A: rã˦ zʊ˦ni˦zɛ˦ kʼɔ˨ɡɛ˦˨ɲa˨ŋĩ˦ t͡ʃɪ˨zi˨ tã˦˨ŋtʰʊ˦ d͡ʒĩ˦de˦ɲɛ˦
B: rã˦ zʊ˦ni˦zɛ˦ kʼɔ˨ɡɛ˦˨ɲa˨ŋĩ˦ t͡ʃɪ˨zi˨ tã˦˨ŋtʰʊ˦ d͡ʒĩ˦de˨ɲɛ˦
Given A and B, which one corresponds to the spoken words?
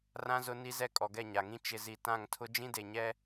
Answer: B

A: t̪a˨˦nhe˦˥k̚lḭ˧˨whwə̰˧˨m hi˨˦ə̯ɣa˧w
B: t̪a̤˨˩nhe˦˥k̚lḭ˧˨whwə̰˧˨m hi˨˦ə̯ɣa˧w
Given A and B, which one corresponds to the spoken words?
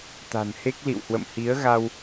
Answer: B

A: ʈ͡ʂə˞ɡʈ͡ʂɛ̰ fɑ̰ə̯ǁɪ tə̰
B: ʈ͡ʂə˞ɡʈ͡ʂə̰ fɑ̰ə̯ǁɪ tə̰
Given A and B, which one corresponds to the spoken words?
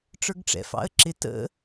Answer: A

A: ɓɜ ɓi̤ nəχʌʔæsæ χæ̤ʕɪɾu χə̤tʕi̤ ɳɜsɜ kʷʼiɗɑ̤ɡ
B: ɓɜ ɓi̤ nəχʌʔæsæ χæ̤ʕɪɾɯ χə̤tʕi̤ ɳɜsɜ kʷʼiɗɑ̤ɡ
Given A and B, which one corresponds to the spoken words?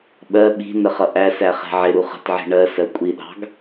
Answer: A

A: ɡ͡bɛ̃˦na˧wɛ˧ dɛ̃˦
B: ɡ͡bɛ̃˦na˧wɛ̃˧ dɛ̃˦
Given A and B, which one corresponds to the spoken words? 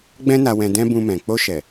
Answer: B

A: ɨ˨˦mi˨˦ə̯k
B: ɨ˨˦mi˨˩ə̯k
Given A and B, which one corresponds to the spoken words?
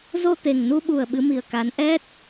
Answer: B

